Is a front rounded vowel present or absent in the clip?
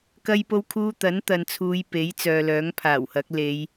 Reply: present